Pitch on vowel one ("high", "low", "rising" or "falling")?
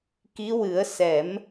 rising